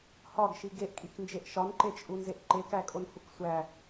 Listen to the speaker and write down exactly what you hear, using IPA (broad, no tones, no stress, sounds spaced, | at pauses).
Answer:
h ɒ ɡ ʃ i ɡ e ʔ kʼ i k n d͡ʒ e ʔ ʃ ɒ n ǃ e t͡ʃʼ u n z e ʔ ǃ e k æ kʼ o n h u k sʷ æ